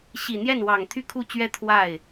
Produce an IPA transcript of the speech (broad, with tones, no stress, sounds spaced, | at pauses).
ɕ i˨˩ n̪ j ɛ˥˩ n w ɑ˨˩ ŋ t̪ʰ y˥˧ kʰ u˥˩ t͡ɕ ɥ ɛ˥ t̪ʰ w a˥˩ ɪ̯